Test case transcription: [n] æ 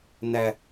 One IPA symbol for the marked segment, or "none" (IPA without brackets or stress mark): n